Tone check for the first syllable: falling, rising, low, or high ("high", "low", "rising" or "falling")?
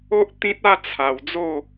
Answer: high